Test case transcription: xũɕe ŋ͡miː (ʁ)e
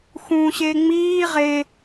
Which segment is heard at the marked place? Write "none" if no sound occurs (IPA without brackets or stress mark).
ʁ